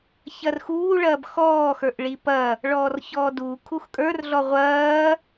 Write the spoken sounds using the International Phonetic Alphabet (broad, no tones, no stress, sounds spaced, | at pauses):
ç ɐ r x uː ɭ ɐː b x ɔː x ə˞ ʔ ɭ i p ɐ | ɭ ɔː r ç ɔː d uː kʰ u x kʼ ə˞ r ɮ ɔ ʁʷ ɐː